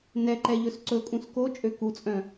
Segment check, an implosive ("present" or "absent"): absent